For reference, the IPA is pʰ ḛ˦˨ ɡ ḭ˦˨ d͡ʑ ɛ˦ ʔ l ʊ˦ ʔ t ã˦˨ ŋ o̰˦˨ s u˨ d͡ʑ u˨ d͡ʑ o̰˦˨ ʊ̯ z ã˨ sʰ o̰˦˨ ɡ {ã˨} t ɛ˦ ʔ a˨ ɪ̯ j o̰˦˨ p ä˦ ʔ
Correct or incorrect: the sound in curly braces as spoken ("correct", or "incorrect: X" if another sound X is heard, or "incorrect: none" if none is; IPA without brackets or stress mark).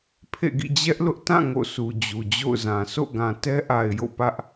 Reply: correct